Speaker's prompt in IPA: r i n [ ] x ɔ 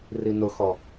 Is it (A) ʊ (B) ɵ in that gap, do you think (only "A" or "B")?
A